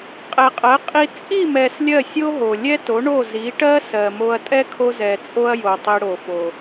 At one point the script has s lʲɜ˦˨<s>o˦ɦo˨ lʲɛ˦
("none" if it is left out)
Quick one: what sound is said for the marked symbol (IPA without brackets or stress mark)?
sʲ